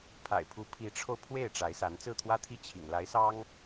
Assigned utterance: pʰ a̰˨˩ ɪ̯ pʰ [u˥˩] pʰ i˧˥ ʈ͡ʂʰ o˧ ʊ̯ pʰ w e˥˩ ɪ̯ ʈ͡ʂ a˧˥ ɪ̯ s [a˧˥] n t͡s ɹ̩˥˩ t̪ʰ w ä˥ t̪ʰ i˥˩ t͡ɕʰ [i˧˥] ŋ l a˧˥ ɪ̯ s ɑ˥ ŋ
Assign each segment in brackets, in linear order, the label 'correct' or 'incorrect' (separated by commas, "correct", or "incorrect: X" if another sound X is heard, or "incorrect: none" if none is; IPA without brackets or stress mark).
incorrect: u˧˥, correct, incorrect: ḭ˨˩